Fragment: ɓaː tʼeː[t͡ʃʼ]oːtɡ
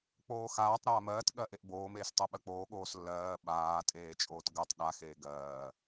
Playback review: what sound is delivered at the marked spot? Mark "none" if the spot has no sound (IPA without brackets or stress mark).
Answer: t͡ʃʼ